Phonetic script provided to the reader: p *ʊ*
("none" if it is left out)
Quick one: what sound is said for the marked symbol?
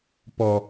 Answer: ɔ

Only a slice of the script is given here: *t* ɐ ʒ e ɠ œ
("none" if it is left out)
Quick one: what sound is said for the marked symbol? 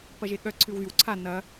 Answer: p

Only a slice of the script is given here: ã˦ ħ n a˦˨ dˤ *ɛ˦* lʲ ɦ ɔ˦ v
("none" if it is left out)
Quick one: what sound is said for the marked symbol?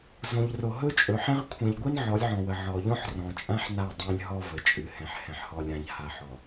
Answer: ɛ̃˦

